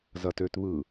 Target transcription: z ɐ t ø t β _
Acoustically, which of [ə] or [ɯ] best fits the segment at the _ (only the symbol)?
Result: ɯ